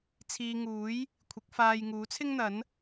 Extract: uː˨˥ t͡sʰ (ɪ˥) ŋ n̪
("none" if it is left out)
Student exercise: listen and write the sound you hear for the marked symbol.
ɪ˥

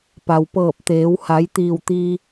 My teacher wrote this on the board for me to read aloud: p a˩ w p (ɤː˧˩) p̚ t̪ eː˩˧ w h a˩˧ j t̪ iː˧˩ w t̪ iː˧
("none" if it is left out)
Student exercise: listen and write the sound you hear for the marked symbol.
ɤː˧˩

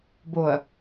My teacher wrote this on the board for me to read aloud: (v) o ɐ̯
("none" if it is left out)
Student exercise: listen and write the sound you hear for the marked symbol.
b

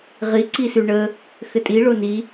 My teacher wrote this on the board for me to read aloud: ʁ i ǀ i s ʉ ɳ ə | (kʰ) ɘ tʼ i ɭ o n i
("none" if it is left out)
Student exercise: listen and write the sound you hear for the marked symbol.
x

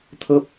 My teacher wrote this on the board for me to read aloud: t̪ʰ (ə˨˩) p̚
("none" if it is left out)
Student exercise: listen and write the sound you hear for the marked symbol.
ə˦˥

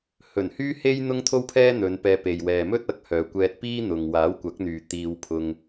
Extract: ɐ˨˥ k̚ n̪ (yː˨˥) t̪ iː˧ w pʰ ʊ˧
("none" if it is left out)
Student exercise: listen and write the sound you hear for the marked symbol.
yː˨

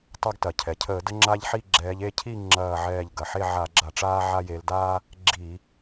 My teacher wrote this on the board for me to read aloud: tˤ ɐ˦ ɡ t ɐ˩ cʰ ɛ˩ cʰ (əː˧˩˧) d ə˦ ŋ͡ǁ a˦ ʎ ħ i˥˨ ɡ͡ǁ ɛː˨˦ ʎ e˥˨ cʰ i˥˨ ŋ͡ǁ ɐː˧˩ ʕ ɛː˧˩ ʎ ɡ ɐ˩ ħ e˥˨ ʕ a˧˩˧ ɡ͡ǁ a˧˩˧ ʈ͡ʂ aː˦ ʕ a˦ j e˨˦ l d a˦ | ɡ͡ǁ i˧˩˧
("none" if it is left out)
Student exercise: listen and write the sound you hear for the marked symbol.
əː˧˩˧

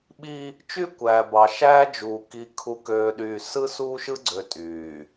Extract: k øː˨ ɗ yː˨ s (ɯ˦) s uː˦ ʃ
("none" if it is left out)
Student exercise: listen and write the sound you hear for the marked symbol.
ɯ˦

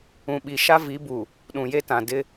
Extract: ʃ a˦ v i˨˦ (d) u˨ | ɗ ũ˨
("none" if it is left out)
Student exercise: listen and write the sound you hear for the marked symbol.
b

